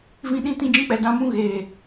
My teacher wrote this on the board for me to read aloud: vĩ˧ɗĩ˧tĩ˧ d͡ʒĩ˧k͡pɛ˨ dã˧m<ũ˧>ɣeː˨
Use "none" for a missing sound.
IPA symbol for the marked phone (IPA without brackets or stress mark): ũ˦